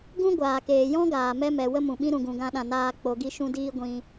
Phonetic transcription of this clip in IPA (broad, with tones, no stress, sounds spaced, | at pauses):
ɡ ũ˦ ɡʷ aː˨ k eː˨ j ɔ̃˦ ɡ aː˨ m ɛ˦ m ɛ˨ w ə˦ m ũ˨ ɓ ĩ˦ ɾ ũ˧ ɡ ũ˧ ɡ ã˦ ɗ ã˧ n aː˦ k͡p o˧ ɡ i˦ ʃ ũ˦ d iː˦ ɡʷ ĩ˦